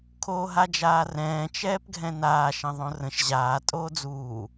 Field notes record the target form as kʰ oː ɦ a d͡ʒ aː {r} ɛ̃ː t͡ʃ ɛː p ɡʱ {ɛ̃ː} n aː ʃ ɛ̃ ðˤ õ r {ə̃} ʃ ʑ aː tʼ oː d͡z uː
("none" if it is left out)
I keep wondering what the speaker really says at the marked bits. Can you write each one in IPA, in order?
r, ɛ̃, ə̃

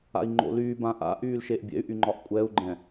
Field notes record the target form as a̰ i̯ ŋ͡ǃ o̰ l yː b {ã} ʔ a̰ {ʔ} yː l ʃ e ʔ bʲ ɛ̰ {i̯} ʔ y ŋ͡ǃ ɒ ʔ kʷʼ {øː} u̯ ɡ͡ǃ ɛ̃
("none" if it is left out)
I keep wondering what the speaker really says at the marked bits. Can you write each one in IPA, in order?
ã, ʔ, y̯, ɛː

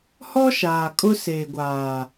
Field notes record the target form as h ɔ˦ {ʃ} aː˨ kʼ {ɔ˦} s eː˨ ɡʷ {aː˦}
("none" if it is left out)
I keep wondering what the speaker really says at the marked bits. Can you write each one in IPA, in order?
ʃ, ʊ˦, aː˨

